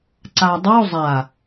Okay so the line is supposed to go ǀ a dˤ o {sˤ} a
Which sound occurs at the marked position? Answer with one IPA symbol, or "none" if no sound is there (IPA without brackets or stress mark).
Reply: zˤ